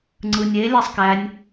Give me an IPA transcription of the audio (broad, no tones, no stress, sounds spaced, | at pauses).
ŋ͡ǀ ɯ nʲ e lʲ æ sˤ k æ nʲ